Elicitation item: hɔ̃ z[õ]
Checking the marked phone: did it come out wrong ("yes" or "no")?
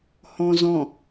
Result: yes